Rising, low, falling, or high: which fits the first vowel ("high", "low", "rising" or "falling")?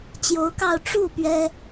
rising